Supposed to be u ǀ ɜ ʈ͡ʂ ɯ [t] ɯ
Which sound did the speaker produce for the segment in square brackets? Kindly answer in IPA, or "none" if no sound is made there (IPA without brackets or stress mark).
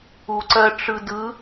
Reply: d